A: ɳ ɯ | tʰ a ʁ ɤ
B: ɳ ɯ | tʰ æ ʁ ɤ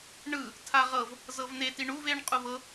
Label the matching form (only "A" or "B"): A